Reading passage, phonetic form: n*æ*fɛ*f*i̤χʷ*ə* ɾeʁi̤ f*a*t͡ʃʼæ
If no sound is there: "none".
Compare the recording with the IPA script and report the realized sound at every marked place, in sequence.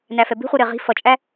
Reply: æ, b, ɯ, ʌ

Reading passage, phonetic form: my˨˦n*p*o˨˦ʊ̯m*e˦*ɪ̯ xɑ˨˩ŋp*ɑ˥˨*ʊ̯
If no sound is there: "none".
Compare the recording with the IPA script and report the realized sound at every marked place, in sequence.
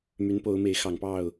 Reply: p, e˨˦, ɑ˥˨

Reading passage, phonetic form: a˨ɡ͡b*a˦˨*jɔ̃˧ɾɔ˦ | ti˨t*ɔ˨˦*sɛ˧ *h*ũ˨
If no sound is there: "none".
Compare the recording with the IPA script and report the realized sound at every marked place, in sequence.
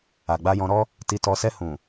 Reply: a˧, ɔ˨, h

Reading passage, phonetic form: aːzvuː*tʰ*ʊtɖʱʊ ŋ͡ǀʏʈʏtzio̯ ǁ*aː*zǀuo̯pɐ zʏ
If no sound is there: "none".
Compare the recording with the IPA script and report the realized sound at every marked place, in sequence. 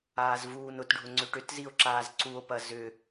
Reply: n, aː

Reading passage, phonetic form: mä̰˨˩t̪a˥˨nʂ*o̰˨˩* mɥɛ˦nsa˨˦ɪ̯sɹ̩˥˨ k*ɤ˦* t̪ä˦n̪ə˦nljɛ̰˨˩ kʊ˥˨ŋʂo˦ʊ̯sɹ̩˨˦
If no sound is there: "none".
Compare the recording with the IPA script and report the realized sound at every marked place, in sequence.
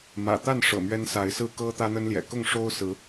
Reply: ɤ̰˨˩, ɤ˦

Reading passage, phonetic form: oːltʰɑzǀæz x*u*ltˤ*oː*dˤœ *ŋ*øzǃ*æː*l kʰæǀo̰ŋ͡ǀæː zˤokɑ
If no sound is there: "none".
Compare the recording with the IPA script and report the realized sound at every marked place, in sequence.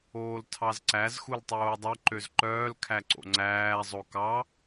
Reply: u, oː, ǃ, œː

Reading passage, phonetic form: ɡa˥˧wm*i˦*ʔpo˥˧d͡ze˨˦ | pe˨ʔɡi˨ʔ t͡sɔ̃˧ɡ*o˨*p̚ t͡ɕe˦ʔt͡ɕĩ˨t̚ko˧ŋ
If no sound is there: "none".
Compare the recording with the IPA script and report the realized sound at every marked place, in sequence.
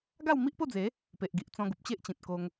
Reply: i˦, u˨

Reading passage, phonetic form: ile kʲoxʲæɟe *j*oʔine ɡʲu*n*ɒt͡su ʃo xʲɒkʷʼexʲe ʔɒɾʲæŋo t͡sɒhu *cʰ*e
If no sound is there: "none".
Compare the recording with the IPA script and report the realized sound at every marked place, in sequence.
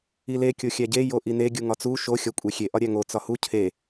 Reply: j, ŋ, cʰ

